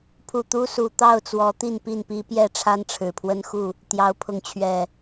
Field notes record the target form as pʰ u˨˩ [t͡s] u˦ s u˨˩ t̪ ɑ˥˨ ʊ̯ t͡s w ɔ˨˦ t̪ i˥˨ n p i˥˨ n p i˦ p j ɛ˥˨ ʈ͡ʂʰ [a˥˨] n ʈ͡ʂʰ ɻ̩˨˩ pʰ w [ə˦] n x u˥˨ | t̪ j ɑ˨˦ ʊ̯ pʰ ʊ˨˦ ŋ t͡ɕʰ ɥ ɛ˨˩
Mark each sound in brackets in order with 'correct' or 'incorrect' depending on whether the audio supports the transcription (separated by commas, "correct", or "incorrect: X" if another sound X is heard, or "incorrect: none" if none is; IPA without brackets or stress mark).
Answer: incorrect: t̪, incorrect: a˦, correct